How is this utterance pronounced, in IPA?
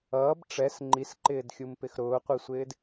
ʌːb ʈ͡ʂɛs ŋ͡ǃisǃɪːdxʲumpɪx ɾʊːqʷisʷɪːd

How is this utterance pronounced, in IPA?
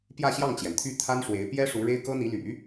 pjä˥˧ɕjɑ˥˩ŋt͡ɕjɛ˩nt̪ʰy˥˩ t̪ʰa˥nʂwe˧˥ɪ̯ pjɛ˥ʂu˧˥ ɻe˥ɪ̯kɤ˥n̪i˧˥ly̰˨˩˦

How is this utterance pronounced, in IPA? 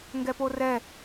ŋɡɛporɛ

